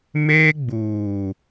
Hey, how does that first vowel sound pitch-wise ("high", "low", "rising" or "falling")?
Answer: high